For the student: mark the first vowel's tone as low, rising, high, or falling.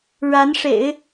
rising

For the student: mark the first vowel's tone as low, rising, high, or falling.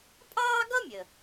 high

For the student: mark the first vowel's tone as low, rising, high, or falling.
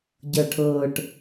low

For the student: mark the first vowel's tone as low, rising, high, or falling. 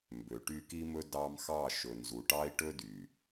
low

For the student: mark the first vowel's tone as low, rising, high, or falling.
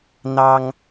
high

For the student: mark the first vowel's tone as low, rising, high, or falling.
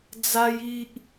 high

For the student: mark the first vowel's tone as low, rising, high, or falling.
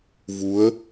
rising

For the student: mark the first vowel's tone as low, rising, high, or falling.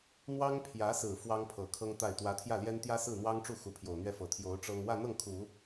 high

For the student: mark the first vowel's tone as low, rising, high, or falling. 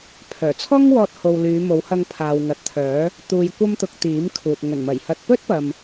low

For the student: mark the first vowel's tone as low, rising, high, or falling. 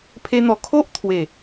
high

